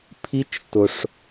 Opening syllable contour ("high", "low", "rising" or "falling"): high